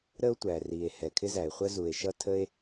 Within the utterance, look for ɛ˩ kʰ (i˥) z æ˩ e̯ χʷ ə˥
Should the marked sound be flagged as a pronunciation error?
yes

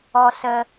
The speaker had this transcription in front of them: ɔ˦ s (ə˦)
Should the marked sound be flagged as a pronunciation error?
no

